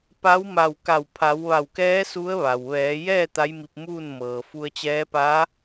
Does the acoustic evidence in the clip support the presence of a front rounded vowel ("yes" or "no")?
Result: no